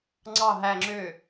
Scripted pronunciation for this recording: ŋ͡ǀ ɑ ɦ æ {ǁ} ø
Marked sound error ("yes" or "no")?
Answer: yes